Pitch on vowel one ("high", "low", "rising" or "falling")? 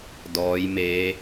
rising